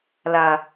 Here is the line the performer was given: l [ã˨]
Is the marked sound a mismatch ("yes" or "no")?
yes